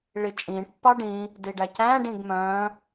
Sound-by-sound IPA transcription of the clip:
ɭ i t͡ʃʼ ĩː ʈ pː ɑ ɖ ĩ | d i ɖ æ c æ̃ː ɖ ĩː ɡ m œ̃ː

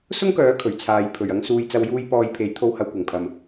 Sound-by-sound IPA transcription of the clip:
s ʊ˥ ŋ k œː˨˥ kʰ ɵ˨˩ ɥ t͡sʰ aː˨˧ j pʰ ɵ˨˩ ɥ ɐ˧ ŋ s uː˨ j t͡s ɐ˨˧ w j uː˧ j p ɔː˧ j pʰ e˨˥ j t̪ʰ o˧ w h ɐ˨˧ w kʷ ɐ˨˩ ŋ pʰ ɐ˨ m

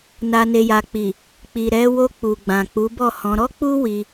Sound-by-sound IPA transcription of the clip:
n a˨ n e˨ j a˨ k͡p i˨ | k͡p i˨ ɾ ɛ˨˦ w o˧ k͡p u˨ ɡ͡b ã˨ k͡p u˨˦ b ɔ˦˨ h ɔ̃˧ ɾ ɔ˦ k͡p u˦ w i˧

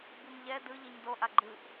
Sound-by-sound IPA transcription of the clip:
b u m ʎ ɛ d ɯ ʎ i ɲ d o ʔ a ɡ͡ǃ ɯ ʔ

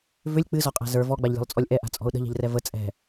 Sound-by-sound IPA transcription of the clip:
v ʏ lʲ k͡p ɨ z ɔ qʼ a̤ z ə˞ v ɔ ɡ͡b a ʎ lʲ ɔ̤ lˠ t͡sʼ ɔ lʲ ʔ ɛ ʔ a̤ t͡sʼ ɔ̤ ʊ̯ ɗ ə̤ ʎ ɛ̤ ʎ r ɛ v ə t͡sʼ ɛ̤

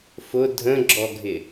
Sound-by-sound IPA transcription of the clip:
f ʊ dʱ ə̃ ɡ͡ǁ ɔ ɡʱ ɪ

